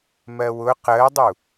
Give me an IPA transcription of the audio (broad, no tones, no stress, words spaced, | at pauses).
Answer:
mɜwʊ qəːdˤu